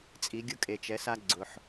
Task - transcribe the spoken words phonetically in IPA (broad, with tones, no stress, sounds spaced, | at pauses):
t͡sʼ i˨˦ ɡʲ ʊ˦ kʼ e˨ t͡ʃ ɛ˨˦ s a˦ ɡ͡ǀ ʊ˨ ħ